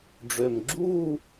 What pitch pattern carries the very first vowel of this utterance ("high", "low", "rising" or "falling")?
low